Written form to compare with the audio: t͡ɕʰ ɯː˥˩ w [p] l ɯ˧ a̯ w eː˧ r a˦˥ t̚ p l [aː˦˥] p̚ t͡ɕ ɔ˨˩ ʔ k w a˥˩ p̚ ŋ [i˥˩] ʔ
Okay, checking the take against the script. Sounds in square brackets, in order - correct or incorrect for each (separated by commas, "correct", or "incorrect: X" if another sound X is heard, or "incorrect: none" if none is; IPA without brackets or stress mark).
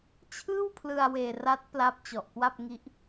incorrect: pʰ, incorrect: a˦˥, incorrect: i˦˥